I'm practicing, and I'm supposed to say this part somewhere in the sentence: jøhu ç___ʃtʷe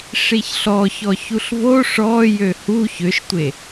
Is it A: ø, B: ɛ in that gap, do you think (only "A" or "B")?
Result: A